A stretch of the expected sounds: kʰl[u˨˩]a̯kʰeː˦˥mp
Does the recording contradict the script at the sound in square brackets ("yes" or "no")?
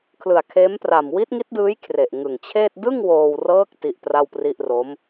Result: yes